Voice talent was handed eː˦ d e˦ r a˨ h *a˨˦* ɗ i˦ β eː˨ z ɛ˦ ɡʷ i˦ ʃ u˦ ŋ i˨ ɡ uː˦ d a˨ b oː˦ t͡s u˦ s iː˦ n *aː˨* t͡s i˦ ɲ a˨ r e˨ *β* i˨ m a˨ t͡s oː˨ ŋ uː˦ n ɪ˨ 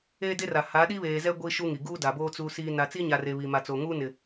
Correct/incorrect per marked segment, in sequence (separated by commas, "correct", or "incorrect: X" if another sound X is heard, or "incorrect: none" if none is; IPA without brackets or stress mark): correct, incorrect: a˨, correct